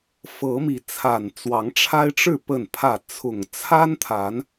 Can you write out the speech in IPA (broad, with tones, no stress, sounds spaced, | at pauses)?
f ɤ˨˦ m i˨˦ t͡sʰ a˨˩ n t͡s w ɑ˨˦ ŋ ʈ͡ʂʰ a˦ ɪ̯ ʈ͡ʂ ɻ̩˥˨ p ə˥˨ n pʰ ä˥˨ t͡sʰ ʊ˨˩ ŋ t͡sʰ a˦ n t̪ʰ a˨˦ n